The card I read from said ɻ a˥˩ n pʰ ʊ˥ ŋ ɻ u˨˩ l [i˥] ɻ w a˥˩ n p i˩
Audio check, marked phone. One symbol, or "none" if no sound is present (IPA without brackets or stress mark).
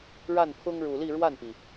i˥˧